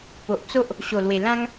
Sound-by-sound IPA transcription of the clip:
po˨ʔt͡so˦ʔ | ɕo˨˩lwe˨˩ lã˦ŋ

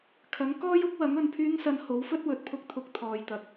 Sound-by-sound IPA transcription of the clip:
kʰɐ˨˥ŋkɔː˥jʊ˥k̚ wɐ˨˥ŋɵ˨n pʰyː˥ŋsɐ˧n ho˨˥wfɵ˥t̚ wɵ˨˥t̚pʰʊ˧k̚t̪ʰʊ˧k̚ t̪ʰɔː˧j t̪ɐ˨˥k̚

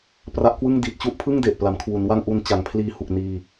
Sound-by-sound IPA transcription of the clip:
pra˦˥ʔkwɯ˥˩ŋ di˨˩t̚t͡ɕu˥˩ʔpʰɯ˥˩ŋde˨˩ʔ pla˩˦mkʰwu˩˦nwa˥˩ŋ ʔu˧nt͡ɕa˩˦ŋpʰliː˧ hu˨˩k̚niː˧

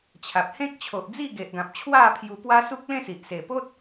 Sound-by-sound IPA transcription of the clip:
t͡ɕʰa˨p̚hẽ˦k̚ t͡ɕʰo˨ʔd͡zi˥˧ɡe˨ʔɡã˨p̚ t͡ɕʰwa˥˧pʰju˧pwa˦ su˦k̚lẽ˥˧si˨ʔ se˨˩po˦t̚

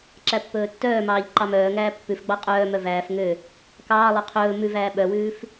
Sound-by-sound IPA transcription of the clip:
ǁæpːɵːtːœːmɑːʎ ǃɑmœːŋæː pːʉfɡ͡bɑ qʼœːmœ væːf ŋø | kɑːlˠø qʰɵː mʉvæː ɓœwʉːf

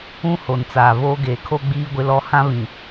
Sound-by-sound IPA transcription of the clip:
ũ˦ho˨nt͡saː˨voː˦ ɡeː˨kʰo˦ɡ͡biː˦ɡʷɪ˦ lɔ˦ hã˦βĩ˨

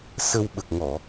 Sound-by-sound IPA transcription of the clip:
sə˧w ɓə˨˩k̚ŋɔ˨˩˨

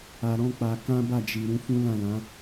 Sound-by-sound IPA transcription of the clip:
a˧ɾɔ̃˦k͡pa˧ kã˦ba˦˨ d͡ʒi˨ ɾũ˨˦fũ˦lã˦˨lã˨˦

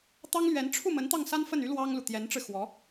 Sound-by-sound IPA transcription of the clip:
t̪ɑ˥ŋlɥɛ˧˥n ʈ͡ʂʰu˥˩mə˧˥n t̪ɑ˥˩ŋsa˥nfə˥˩ny˥ lwɑ˥ŋlu˨ t̪jɛ˧˥nʈ͡ʂɻ̩˧xwɔ˧˥

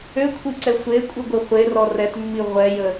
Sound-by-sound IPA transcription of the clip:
økʷʰiǀɛ sʷekʷʼɨɡʷɘ χʷerɔ rɛtmːi ʁʷɛjə

